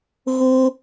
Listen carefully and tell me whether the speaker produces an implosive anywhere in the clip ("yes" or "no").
no